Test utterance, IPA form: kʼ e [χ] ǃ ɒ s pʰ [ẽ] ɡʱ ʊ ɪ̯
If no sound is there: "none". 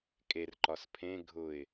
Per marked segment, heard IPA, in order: r, ẽ

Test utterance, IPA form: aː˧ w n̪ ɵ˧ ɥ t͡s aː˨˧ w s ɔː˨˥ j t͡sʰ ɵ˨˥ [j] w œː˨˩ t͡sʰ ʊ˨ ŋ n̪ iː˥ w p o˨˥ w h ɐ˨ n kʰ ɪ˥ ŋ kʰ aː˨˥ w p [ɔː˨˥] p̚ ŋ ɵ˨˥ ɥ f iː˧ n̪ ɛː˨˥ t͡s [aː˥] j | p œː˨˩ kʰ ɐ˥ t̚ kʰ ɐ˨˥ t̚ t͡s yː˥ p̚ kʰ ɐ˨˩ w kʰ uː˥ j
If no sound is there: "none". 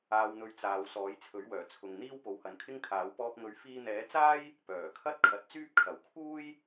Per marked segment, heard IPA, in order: ɥ, ɔː˧, aː˥

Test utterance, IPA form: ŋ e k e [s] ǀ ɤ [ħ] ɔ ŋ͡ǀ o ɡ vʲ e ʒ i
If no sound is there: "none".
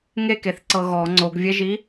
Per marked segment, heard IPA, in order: θ, ɣ

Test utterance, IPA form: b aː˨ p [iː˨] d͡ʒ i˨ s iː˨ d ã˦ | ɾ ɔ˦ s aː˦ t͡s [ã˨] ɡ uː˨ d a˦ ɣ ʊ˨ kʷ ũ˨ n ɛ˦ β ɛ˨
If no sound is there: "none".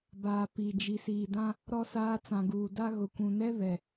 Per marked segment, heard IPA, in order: i˨, ã˨

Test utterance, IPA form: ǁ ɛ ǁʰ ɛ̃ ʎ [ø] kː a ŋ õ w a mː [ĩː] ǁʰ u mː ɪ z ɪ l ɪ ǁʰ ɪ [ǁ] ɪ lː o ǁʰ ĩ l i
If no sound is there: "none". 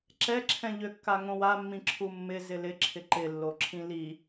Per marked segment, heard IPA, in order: ø, ĩ, ǃ

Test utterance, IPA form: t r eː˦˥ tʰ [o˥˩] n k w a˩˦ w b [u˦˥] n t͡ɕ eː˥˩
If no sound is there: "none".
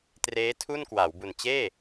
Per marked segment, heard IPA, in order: u˥˩, u˨˩

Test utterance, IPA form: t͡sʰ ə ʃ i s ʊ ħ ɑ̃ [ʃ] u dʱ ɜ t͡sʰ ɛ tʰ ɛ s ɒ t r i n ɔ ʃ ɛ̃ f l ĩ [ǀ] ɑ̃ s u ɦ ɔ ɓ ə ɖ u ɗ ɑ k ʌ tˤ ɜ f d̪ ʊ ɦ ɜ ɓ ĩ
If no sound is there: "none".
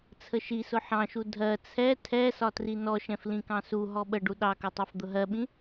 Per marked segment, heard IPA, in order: ʃ, k

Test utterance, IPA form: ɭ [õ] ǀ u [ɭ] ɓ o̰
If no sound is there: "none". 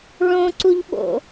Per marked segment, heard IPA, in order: õ, ʎ

